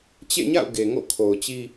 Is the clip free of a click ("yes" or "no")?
yes